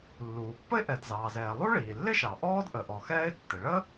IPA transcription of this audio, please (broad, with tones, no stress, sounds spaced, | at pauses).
lː uː˩ pː ə˥ ɪ̯ ʔ ɛ˩ d z ɑː˩ z ɛː˩ lˠ u˥ ɭ iː˩ lː ɪ˥ ʃ ɑ˩ ʔ ɔː˥ d ʔ ə˩ ʔ ɔ˩ x ɛː˥ ɪ̯ tː ɪ˩ ɭ ə˥